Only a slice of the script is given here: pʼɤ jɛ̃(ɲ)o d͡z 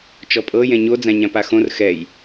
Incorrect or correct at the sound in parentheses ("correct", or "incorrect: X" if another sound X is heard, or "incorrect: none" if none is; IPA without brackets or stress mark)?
correct